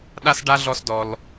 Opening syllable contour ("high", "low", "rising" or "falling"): high